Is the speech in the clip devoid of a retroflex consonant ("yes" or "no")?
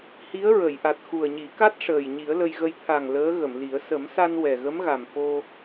no